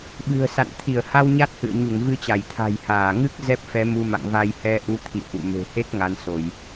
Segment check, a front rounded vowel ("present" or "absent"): absent